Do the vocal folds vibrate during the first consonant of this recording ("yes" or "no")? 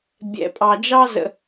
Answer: yes